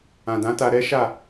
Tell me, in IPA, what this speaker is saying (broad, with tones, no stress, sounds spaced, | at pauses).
ã˨ d ã˨˦ t a˧ ɾ ɛ˦ ʃ a˦˨